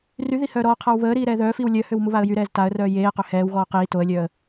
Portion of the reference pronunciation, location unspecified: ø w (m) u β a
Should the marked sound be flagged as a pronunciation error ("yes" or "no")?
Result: no